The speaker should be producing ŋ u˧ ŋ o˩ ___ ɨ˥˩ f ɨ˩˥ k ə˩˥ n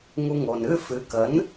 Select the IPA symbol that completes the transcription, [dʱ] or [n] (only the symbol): n